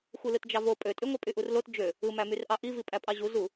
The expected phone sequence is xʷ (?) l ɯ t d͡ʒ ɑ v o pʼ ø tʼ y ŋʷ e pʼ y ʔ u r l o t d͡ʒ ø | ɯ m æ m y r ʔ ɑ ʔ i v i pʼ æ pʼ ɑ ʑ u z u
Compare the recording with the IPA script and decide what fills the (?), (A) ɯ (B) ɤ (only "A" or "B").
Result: A